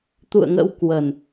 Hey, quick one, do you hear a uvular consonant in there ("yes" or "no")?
no